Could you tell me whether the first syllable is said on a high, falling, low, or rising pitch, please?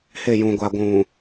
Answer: falling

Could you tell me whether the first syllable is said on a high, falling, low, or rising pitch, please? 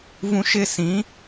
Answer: high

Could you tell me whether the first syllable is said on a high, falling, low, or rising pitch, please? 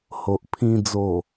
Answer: low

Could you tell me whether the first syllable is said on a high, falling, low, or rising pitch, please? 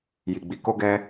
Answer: low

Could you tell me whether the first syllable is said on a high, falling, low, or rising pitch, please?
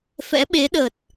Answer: rising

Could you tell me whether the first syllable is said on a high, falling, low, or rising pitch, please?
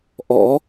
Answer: rising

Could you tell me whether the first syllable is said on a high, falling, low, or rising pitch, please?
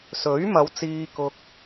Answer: rising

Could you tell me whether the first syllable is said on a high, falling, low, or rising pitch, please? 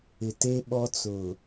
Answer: low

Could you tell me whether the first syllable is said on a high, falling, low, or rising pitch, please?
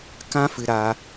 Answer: high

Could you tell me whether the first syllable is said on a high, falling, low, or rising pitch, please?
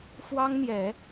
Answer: high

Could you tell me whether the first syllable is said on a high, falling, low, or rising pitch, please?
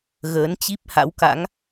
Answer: rising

